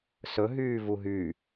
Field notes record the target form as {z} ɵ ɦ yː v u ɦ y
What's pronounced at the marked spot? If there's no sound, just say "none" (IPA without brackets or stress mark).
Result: s